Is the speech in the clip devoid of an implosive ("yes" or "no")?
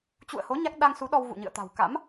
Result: no